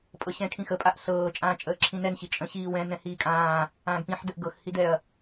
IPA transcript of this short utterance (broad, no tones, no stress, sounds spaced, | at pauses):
pʼ ɤ ɕ ɛ̃ kʰ ĩ x ə pʼ a ʔ ɬ ɤː t͡ʃʼ ãː t͡ʃʼ əː ǁʰ ĩ n ɛ n ɕ i t͡ʃʼ ə̃ ɕ iː w ɛ̃ n ɛ̃ h iː kʼ ãː | ãː ɡ p ĩ ħ d ə ʔ ɡ ɤ x h i d ɛ ɐ̯